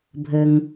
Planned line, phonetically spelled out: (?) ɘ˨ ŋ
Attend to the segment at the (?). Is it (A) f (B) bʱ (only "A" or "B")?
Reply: B